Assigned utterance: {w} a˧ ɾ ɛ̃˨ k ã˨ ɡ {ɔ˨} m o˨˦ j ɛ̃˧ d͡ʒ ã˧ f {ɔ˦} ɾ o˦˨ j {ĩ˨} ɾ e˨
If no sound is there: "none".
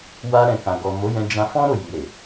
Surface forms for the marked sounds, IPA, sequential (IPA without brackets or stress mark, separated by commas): w, ɔ˨, ɔ̃˦, i˨